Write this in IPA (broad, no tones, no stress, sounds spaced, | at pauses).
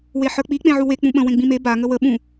w e ħ ə˞ k͡p i k͡p ẽ ʕ u w e k͡p ũ ɓ ə̃ w ẽ ɡ͡b ĩ m e b a ŋ ə w ə ɓ ũ